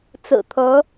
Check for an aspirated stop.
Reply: present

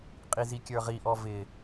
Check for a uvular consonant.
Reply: present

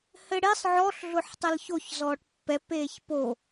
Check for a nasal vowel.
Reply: absent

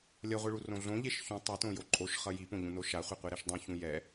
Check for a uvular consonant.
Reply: present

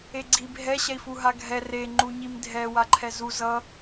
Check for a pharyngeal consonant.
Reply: absent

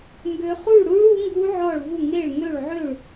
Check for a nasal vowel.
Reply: absent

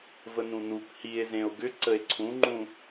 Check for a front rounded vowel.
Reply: present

